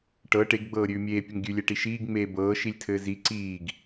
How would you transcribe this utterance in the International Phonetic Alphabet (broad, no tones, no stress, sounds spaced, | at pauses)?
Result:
ʈ ɤ ʈ e ɡ ɡ͡b ɤː ɾʲ ʉː mʲ eː pʲ ɘ ŋ ɡʲ ʉ lʲ ɛ ʈ i ʃ iː ɡ ŋ͡m eː b ɤː ʃ i lʲ tʰ ɘː z i ǀ iː ɡ